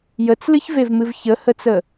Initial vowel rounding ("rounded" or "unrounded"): unrounded